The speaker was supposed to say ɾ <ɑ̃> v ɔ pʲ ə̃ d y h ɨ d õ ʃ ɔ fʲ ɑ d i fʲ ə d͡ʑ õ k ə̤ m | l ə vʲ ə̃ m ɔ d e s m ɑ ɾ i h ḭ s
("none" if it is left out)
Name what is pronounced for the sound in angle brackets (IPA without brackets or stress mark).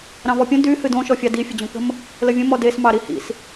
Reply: ɑ̃